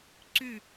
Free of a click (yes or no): no